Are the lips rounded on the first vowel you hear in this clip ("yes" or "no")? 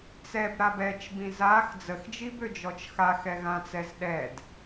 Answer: no